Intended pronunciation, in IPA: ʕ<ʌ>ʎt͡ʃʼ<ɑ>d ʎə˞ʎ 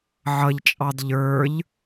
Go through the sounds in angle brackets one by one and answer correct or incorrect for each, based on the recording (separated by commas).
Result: correct, correct